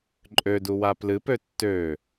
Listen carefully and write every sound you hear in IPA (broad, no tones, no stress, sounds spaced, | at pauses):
ǃʼ ø d u w a p l ɨ p ø tː ø